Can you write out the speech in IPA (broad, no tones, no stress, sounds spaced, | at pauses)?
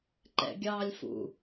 ǃ ɛ̰ ɡʲ ɑː lʲ f ṵ